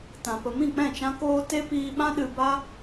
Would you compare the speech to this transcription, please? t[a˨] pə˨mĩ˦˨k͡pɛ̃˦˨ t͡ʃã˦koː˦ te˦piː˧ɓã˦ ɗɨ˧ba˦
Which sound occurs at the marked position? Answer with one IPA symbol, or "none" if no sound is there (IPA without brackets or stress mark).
ã˨